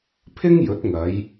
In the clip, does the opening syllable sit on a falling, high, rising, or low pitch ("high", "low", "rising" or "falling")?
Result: high